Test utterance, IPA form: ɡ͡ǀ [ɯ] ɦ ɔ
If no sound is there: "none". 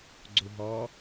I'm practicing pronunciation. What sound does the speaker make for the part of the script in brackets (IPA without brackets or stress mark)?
u